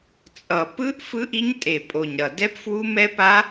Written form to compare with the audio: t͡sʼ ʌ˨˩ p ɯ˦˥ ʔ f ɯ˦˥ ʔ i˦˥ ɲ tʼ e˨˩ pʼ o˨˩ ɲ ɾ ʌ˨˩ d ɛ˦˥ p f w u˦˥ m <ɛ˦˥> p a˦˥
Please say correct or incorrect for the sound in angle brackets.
correct